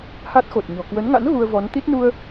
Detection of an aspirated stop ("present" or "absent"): absent